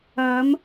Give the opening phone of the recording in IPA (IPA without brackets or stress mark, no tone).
ɐ